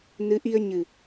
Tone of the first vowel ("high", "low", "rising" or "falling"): rising